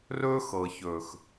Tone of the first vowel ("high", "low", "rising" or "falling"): high